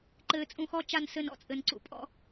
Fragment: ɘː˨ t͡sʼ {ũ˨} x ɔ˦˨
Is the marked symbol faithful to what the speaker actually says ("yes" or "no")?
yes